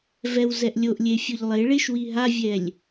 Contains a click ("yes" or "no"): no